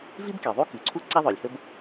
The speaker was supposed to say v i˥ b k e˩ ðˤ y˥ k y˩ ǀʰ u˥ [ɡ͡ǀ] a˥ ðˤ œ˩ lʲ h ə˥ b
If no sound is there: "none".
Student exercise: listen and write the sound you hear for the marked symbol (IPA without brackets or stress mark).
ǀ